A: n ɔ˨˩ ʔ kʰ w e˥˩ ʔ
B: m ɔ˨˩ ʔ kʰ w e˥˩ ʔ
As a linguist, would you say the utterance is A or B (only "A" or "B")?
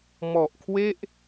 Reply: B